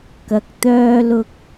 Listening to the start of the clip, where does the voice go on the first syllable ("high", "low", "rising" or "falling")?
low